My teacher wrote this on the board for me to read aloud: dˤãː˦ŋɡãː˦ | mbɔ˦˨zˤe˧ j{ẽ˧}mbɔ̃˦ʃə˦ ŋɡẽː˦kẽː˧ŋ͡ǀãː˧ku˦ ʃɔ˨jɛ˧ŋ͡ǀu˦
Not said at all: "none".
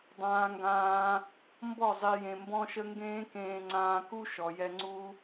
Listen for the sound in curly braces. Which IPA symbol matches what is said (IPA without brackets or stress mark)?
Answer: ẽ˧